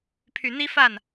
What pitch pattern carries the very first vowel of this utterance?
low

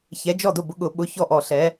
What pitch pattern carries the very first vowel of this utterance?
rising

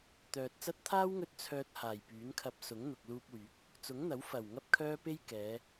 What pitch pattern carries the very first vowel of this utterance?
low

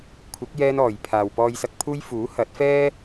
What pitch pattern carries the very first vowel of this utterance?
rising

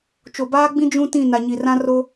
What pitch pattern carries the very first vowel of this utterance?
low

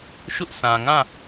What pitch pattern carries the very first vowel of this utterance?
high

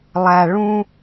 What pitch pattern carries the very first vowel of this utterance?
low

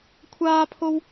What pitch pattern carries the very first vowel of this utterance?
high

